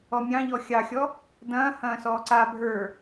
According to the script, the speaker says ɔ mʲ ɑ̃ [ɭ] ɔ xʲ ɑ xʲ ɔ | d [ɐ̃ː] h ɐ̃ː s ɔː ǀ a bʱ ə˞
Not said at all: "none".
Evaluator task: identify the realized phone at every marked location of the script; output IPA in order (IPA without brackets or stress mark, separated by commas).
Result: ʎ, ɐ̃ː